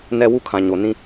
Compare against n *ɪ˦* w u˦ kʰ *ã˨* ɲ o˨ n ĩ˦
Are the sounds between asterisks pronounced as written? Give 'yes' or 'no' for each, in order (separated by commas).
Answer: no, yes